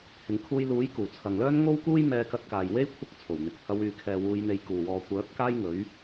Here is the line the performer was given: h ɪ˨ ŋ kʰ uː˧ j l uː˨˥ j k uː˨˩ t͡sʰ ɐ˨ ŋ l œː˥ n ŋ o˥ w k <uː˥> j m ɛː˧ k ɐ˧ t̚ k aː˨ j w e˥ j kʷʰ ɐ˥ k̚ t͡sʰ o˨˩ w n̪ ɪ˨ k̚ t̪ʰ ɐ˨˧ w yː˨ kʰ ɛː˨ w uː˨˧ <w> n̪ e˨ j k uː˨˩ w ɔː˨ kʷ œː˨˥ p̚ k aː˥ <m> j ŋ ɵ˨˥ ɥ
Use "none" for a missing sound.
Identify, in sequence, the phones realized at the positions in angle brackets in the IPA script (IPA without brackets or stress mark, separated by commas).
uː˥, j, none